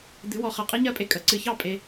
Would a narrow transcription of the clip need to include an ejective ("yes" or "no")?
yes